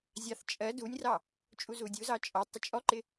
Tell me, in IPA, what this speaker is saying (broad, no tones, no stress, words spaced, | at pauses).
zʲɑθ t͡ʃʼɜ dunʲrɑ | t͡ʃʼuzudʲuzɑ t͡ʃʼɔ tˤʊt͡ʃʼɔǃɪ